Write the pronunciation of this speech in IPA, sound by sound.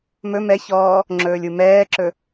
m ɵ m ɛ ç ɔː | ŋ͡ǁ ɵː lʲ u m ɛː ǁ ɵ

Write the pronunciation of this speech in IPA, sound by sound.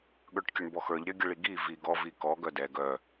ɠ ə˞ ʈ kʲ ə ɳ b ɔ x ə˞ ʎ ɾʲ œ ɡʲ ə ɭ i ɡ i v i ɡ ɔ v i k ɔ ɡ œ d ɛ ɡ œ

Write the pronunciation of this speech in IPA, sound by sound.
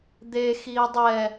d̪ e x iː dˤ ɛ

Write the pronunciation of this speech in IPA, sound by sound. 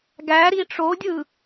ɡ æ ɾ i ʈ͡ʂ o dʲ ɯ

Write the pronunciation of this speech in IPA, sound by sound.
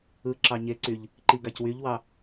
ɯ ǁ ɑ ɲ e ǀ y ʎ | ǃ i ɡ ɑ c w y ʎ w ɑ

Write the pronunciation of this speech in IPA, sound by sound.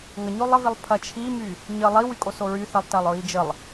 ŋ ɐ ɲ o lˠ ə v i lˠ pʰ ɐ t͡ʃʰ i m y | ɲ ə lˠ i w y kʼ o s o ɹ y θ ɐ lˠ t ɐ lˠ ɹ i d͡ʒ ə lˠ

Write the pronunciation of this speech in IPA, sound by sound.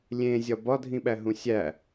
lʲ ẽ zʲ ɒ b ɒ dʱ ĩ ɓ æ ɦ ũ sʲ æ

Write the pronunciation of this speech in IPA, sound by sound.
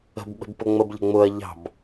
ə̤ b ɓ ə̤ b p ʊ ŋ͡m ə b ʎ ə̤ ŋ͡m ʊ ɐ̯ ʎ ɑ̤ b

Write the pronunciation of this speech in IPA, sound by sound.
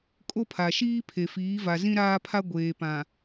kʼ o˦ pʰ a˨ ʃ iː˦ pʰ e˨ f iː˨˦ v a˨ z ĩ˦ ɾ aː˦ pʰ a˦ ɡʷ eː˨ p ã˨

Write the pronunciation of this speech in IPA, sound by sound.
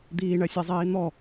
d̪ iː ɳ ɜ sʲ ɛ zˤ iː n̪ ɔ

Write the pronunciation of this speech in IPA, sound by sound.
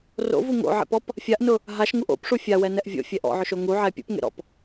r o̰ v u ŋ o̰ ʕ ḛ p ɔ p | fʲ a ʔ n ʊ | ɦ a ʃ ŋ u ʔ o̰ p ʂ u fʲ a w ɛ n ɛ ʔ vʲ o̰ fʲ ɛ ʔ ɔ̰ ʕ ʊ ʃ o ŋ u ʕ ɛ pʲ ṵ p ŋ ḛ ɾ ɔ̰ p

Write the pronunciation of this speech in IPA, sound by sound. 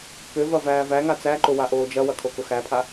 k ø v ɐ v æː v æ ŋ a t͡s æ ǃ ʊ w a ʔ oː d͡ʒ ɐ w ɐ kʰ o k ʊ x æ pʰ a

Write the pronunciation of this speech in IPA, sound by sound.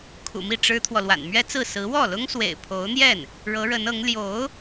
kʰ ṵ˨˩ m i˥˩ ʈ͡ʂ ɻ̩˥ t̪ʰ w ɔ˨ l w a̰˨˩ n m ɥ ɛ˥ t͡s ɹ̩˥˩ s ɹ̩˧˥ w ɔ˥˩ l ʊ˥ ŋ s w ḛ˨˩ ɪ̯ pʰ o˧˥ ʊ̯ n̪ j ɛ˥˩ n | ɻ ɤ˧˥ ɻ ə˧˥ n ɤ˧˥ ŋ l j o˧˥ ʊ̯

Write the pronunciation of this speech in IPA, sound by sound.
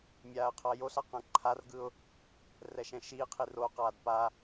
mʲ aː ə̯ qʰ ʌ j o ɬ a q ɛ̃ ǃʰ a r ɡ ɯ ʊ̯ | r ɛ ʃ ɛ̃ ʃ iː qʰ i r o q aː d p a

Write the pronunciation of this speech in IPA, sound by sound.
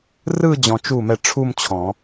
r ɯ˥˧ d͡ʑ ɔ̃˨ t͡ʃ u˥˩ m ɛ˥˩ ʈ͡ʂʰ u˥˧ m t͡ɕʰ ɔ̃˨˩˦

